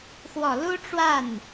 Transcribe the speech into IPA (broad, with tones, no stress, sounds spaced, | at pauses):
x w ɔ˨˩ l u˥ ʈ͡ʂ w a˥˩ n